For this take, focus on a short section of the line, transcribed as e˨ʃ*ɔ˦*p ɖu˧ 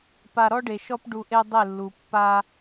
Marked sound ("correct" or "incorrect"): correct